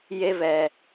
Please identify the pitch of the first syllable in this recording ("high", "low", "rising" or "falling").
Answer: high